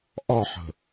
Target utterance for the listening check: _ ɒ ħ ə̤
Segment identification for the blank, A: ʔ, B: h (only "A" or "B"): A